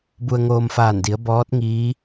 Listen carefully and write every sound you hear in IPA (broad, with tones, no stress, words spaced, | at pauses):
bu˧ə̯ ŋoː˧mfaː˧˩ndi˩˧ə̯ bɔː˧˥t̚ ŋiː˧˥